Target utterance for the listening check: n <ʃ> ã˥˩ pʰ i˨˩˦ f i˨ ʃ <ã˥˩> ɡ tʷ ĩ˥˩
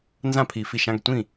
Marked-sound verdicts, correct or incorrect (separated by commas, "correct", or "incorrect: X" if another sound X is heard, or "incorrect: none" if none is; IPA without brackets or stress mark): incorrect: z, incorrect: ã˧˥˧